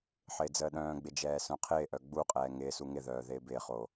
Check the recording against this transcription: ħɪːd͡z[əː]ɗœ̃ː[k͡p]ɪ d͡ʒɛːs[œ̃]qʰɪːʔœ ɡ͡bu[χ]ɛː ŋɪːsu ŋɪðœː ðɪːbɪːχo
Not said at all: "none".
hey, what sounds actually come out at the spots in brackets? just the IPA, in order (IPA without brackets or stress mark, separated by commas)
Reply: əː, ɡ͡b, œ̃, qʼ